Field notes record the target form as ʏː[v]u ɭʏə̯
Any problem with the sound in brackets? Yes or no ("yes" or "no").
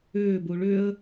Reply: yes